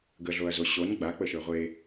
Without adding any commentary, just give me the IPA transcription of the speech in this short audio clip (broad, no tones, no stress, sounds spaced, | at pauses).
ɡ ə ɮ o ɐ̯ z o ɕ o n ɡ͡b a k͡p ə ʃ ə˞ ʁʷ e